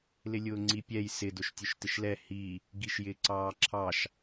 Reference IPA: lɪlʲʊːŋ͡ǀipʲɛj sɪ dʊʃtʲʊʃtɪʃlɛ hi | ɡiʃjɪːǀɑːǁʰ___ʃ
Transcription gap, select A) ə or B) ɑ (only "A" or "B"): B